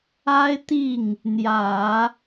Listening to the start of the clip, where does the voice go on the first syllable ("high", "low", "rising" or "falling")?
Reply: high